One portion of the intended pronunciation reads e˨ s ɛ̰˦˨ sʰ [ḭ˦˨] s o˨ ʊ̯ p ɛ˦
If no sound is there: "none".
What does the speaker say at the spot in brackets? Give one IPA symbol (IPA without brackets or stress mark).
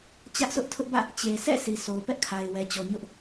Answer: i˨